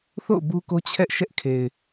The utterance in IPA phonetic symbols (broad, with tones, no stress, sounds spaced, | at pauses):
θ o̰˦˨ ʊ̯ b u˦ k o˦ t͡ɕʰ ɛ˦ ʔ ʃ ɛ˦ ʔ kʰ e˨ ɪ̯